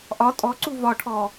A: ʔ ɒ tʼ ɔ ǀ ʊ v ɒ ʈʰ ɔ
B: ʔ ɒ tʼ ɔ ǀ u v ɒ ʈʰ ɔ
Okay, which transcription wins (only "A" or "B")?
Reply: B